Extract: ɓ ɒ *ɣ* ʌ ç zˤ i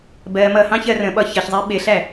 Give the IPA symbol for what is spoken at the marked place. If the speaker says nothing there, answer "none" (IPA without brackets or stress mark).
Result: ç